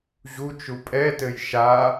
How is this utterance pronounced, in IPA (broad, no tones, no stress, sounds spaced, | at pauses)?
ʑ u t͡ʃ u pʼ ɛ t ɘ j ʃ a